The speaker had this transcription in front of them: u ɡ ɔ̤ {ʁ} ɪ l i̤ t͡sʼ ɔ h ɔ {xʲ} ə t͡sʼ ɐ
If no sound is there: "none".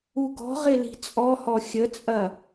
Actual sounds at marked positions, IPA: ʁ, xʲ

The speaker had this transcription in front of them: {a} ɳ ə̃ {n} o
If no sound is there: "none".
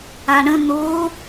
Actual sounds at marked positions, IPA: a, n

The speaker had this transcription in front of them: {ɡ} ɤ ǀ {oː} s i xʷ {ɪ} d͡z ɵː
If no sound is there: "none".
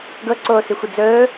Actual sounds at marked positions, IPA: ɡ, oː, ɪ

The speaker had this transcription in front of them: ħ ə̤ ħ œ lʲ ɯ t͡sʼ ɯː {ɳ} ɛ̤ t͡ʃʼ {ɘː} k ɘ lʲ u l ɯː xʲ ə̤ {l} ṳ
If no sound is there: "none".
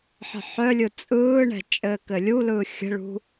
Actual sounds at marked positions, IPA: ɳ, ɘː, ɭ

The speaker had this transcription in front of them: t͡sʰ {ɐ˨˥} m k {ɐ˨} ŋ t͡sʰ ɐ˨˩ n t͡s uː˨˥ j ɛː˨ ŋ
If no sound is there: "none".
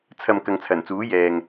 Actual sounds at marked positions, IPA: ɐ˨, ɐ˨

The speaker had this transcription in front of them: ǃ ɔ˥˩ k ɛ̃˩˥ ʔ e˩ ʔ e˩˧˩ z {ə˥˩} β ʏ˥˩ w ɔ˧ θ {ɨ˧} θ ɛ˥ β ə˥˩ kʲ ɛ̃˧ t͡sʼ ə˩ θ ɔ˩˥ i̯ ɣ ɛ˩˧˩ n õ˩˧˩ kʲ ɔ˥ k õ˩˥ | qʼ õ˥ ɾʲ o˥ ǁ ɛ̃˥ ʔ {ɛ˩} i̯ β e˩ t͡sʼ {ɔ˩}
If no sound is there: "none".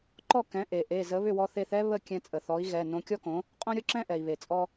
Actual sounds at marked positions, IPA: ə˩˥, e˧, ɛ˩, ɔ˧

